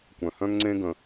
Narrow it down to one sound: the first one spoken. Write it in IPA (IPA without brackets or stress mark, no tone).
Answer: kʷ